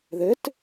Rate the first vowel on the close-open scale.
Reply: mid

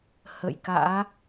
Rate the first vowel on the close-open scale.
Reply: mid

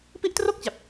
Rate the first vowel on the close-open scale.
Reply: close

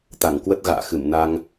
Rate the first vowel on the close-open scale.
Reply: open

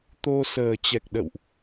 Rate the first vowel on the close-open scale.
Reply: mid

